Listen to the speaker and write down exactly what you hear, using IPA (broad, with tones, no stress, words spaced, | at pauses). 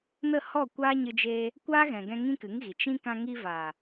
nə˦˨ hɔ˦˨kʷaː˦ɲɨ˧d͡ʒeː˧ | kʷaː˦ɣɛ̃˨ɡɛ̃˧ ŋĩ˦kɨ˨˦ŋɣi˨ t͡ʃĩ˦ kã˧ŋi˧vaː˨